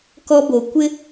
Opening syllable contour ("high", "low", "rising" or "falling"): high